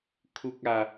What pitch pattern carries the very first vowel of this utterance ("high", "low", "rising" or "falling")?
high